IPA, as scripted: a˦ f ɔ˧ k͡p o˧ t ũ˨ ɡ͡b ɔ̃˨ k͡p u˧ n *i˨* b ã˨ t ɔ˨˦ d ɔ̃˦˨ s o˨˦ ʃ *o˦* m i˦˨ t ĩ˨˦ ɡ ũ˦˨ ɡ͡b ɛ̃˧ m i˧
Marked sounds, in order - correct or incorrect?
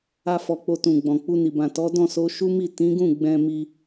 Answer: correct, incorrect: u˦

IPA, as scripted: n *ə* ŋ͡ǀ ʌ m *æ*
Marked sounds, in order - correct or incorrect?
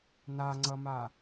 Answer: incorrect: a, incorrect: a

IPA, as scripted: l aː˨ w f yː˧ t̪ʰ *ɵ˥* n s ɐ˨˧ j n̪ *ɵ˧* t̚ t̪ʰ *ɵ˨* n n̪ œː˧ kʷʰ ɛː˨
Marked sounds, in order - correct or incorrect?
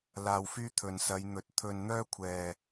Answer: incorrect: ɵ˨, incorrect: ɵ˨˥, correct

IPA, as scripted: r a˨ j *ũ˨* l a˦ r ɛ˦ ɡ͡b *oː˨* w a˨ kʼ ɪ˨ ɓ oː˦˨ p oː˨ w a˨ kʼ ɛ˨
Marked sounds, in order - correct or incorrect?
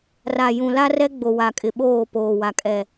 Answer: correct, incorrect: o˨

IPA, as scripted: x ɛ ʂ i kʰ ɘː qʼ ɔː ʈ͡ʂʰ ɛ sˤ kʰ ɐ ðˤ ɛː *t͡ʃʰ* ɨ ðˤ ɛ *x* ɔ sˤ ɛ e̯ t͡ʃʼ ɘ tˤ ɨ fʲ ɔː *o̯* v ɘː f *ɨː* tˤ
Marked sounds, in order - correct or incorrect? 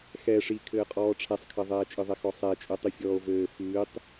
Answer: incorrect: t͡ʃʼ, correct, correct, correct

